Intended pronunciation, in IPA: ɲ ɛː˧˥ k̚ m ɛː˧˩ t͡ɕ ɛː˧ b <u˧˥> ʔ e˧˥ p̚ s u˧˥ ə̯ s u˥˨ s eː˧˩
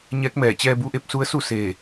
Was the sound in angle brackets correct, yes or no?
yes